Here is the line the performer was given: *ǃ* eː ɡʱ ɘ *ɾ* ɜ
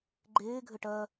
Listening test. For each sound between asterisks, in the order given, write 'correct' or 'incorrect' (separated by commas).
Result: incorrect, incorrect